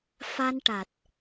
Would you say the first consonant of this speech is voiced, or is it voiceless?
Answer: voiceless